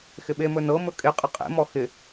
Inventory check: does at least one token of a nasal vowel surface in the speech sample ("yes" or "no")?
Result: no